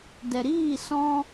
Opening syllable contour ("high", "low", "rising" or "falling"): low